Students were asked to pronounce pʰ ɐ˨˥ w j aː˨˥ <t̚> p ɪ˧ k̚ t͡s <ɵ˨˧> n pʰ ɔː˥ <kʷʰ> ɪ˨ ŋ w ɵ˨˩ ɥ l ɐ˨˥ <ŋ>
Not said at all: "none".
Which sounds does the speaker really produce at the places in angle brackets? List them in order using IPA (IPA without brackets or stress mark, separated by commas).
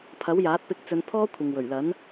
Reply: t̚, ɵ˨˧, kʷʰ, n